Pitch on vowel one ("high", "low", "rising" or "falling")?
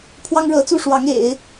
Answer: high